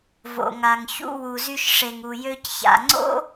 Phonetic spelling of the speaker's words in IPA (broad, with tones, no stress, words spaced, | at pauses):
vo̰˩ŋa˩ŋçṵ˧ wu˩zy˧ʃʂe˩ŋ u˩jø˧cça̰˩ŋ͡ǀo̰˥